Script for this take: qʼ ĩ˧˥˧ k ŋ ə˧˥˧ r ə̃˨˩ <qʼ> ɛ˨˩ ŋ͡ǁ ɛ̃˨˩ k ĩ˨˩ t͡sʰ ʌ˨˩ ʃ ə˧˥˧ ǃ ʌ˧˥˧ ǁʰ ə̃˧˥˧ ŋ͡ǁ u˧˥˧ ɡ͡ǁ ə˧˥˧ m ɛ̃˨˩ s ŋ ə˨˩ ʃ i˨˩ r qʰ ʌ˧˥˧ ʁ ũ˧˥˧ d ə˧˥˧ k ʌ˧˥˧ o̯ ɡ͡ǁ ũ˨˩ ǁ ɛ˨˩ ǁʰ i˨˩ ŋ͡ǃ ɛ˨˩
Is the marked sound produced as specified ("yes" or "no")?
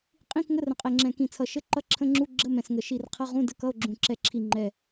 yes